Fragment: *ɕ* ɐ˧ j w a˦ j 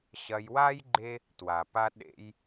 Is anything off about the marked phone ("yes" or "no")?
no